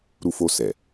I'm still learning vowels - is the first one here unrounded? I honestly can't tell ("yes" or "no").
no